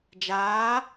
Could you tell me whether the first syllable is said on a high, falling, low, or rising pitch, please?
rising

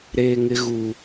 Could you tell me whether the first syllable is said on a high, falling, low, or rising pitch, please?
high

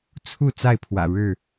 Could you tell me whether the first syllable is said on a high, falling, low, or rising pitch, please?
falling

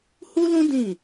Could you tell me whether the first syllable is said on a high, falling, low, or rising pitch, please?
high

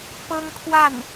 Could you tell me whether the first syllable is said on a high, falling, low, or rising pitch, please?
high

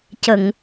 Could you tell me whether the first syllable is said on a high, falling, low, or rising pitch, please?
low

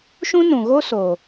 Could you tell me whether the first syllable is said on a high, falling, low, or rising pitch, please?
high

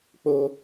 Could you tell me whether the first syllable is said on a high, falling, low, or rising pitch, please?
high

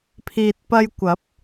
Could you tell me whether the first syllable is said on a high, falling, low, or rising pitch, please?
low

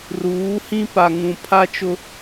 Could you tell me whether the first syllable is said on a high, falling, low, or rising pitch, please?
rising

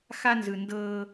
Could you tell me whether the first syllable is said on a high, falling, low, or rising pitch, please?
high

